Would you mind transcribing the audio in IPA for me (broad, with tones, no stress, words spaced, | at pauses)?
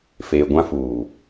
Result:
feː˨ɡʷã˦ fuː˨